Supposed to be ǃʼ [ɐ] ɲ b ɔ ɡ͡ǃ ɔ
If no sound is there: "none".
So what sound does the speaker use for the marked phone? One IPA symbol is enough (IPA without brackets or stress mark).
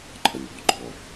ɐ